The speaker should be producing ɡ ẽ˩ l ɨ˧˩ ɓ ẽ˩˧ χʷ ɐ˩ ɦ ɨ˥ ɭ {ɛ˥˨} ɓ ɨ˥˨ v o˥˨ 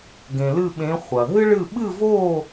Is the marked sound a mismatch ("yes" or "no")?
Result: yes